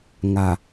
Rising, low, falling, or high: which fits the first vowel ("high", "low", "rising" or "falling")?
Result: low